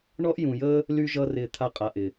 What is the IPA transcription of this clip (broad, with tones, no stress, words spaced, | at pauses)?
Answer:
ɳɔ˦ʔjũ˨jəː˦ | ly˦ʒʌ˦rɪː˧ t̪ʰa˧qʼa˨ʔɪ˨